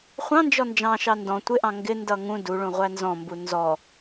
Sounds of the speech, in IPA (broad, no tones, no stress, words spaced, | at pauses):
χʷɑ̃nd͡ʒɔ nd͡ʒɑ̃ʃɑ ndɔ̃ tʷɪʔɑ̃ ŋɡɪ ndʌŋũ duɭũ ʁʷænzɔ̃mbu nzɔ